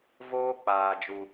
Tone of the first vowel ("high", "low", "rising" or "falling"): high